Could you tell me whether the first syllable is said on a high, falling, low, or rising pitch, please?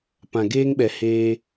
low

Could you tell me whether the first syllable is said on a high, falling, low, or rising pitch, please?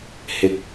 low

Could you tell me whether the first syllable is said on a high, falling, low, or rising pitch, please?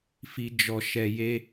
low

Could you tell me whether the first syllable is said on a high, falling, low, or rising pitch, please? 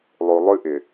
low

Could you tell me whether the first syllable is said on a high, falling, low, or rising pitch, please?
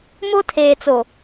high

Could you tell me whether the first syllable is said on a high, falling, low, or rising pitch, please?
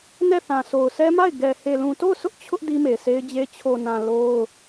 falling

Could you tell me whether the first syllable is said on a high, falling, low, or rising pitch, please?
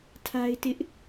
high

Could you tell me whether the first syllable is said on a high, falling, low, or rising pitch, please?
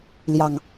low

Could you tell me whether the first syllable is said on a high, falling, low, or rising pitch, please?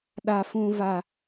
high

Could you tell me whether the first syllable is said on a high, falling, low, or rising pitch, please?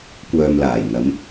low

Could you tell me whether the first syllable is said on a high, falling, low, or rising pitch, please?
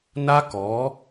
high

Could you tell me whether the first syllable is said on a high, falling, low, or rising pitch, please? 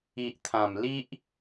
low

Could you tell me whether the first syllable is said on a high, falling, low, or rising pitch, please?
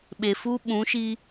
low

